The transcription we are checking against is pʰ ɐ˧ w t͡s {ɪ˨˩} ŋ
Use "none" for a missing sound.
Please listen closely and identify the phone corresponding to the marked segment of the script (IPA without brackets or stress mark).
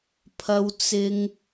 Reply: ɪ˧